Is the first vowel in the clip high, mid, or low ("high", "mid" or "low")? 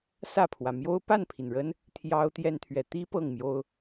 low